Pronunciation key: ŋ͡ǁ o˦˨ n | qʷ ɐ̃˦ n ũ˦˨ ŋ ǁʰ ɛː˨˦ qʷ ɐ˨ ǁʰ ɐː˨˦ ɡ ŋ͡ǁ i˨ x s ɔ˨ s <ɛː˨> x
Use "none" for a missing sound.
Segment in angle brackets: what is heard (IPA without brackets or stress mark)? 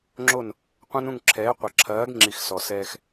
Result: ɛː˧